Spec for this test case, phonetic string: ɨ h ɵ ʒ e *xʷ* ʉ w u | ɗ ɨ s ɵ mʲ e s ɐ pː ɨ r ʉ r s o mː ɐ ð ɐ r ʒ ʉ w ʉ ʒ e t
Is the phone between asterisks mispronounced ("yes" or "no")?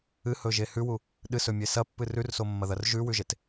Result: yes